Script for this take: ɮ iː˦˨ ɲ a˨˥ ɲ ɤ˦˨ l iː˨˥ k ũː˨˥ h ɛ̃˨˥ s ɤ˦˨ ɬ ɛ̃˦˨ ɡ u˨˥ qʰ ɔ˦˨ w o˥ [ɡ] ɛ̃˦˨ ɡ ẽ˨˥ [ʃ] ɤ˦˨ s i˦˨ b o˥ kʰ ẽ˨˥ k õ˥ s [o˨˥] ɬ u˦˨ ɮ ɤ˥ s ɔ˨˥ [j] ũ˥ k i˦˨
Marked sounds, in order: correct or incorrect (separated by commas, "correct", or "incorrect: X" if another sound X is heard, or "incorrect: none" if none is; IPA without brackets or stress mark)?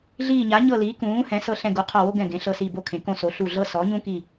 correct, incorrect: ɬ, correct, incorrect: ɲ